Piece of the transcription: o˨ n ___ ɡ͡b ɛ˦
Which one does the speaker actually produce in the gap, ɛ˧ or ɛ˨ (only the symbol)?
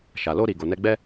ɛ˧